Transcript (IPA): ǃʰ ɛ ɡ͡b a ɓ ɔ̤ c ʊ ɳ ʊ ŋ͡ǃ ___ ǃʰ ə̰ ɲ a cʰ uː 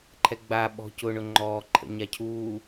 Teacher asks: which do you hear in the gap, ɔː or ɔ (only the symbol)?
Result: ɔː